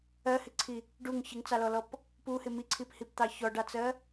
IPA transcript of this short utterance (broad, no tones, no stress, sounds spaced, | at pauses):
ɜ h ɪ ǀʰ i | ɖ u ŋ ç ɪ ŋ t͡s ɑ l ɔ l ɔ p | p u h ɪ m i ǀʰ i p h i p t̪ ɑ ç ɔ ɖ ɑ t͡s ɜ